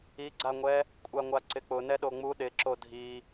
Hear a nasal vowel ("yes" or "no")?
no